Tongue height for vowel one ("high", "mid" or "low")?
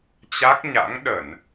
low